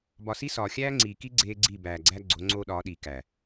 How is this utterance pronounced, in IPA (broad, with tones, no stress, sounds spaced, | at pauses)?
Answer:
b ɒ˨ s i˦ s ɒː˨ xʲ æː˦ ŋ͡ǀ iː˨ k i˦ ɡ͡ǀ eː˦ ɡ͡ǀ i˦˨ b æː˨ ɡ͡ǀ æ˦ ɡ͡ǀ o˨˦ ŋ͡ǀ oː˦ ɗ ɒː˨˦ ɗ iː˨ k æ˨